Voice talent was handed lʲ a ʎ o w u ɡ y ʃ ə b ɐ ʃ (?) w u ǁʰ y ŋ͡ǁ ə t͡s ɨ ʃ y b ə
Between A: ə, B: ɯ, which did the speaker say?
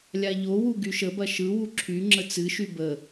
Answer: B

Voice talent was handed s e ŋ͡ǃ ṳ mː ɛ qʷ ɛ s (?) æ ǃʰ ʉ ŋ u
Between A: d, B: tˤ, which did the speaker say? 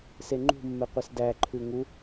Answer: A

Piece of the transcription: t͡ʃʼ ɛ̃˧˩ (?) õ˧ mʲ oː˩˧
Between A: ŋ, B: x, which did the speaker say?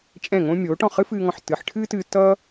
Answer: A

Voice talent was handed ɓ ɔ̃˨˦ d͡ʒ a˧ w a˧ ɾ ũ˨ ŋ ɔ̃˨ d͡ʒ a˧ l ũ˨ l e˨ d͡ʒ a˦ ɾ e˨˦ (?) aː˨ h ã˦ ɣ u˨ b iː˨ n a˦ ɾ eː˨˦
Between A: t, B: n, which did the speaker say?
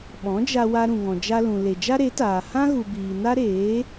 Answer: A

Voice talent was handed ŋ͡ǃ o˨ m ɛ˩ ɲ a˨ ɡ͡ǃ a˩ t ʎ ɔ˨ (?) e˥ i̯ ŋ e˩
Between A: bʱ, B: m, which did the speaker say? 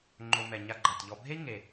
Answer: A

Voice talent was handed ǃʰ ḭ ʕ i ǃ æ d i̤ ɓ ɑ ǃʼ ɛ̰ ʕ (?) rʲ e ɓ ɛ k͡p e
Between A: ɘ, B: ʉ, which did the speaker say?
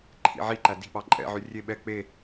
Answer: B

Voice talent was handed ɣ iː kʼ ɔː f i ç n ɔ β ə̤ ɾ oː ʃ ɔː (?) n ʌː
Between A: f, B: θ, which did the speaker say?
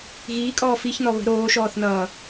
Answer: B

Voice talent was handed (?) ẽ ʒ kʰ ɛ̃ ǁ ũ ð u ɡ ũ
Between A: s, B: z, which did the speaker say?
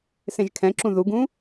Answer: A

